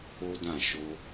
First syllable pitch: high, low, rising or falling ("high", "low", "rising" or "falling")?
high